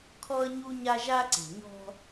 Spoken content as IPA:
kʰ ɔ˦ ə̯ ɲ u˦ ɲ a˦ ʒ a˦ ǀ e̤˨ ɲ ɔ̤˦

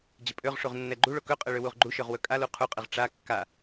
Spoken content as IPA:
d͡ʑ ə pʼ ø ʁ ʂ u ʁ nː ɛ ɡ͡ǃ u ɭ o k ɵ qʼ ə ɭ ø w u ʁ ɡ͡ǃ u ʃ ø ʁ w ɵ kʼ a l u qʰ u qʼ ə ʁ ʈ͡ʂ a kː a

